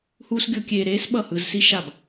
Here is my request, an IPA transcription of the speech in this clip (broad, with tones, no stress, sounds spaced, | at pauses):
h uː˦ s ɡʲ o˦ kʲ eː˧ ɾ eː˦ s ɓ ʌ˦˨ h ɯ˧ z s i˦ ʃ a˦˨ b